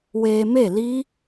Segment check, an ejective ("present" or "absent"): absent